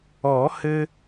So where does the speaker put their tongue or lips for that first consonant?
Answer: throat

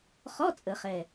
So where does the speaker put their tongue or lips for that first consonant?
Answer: uvula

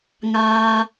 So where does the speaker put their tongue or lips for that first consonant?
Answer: velum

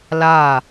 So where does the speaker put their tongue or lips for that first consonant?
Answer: tongue tip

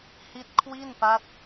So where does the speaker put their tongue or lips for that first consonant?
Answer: throat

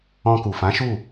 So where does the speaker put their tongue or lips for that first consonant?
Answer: velum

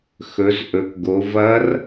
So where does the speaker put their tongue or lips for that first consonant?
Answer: velum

